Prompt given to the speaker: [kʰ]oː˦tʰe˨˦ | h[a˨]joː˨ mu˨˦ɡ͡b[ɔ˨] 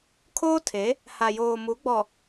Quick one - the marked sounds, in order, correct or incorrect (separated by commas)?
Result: correct, correct, correct